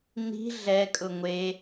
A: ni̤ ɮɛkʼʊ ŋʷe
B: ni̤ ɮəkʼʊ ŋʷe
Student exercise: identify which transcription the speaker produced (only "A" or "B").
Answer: A